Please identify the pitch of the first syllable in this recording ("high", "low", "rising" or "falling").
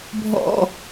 low